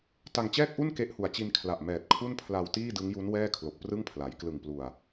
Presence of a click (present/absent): absent